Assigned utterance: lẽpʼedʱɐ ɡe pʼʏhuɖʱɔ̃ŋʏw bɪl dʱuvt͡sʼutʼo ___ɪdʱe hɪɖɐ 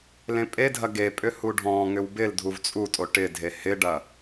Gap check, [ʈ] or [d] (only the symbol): ʈ